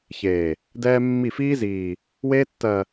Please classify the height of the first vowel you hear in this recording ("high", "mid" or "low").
mid